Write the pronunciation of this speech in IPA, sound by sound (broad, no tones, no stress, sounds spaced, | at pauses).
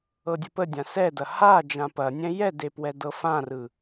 ɤ dʲ ə p ə dʲ ã s ɛ d ɐ h a d͡ʒ ã p ɐ nʲ ɛ̃ j ɛ d e p w ɛ d ɤ f ã r ɯ